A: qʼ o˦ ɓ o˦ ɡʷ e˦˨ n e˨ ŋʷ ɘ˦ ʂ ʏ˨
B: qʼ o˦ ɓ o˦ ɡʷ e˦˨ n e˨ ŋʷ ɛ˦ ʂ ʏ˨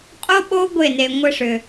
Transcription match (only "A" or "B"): A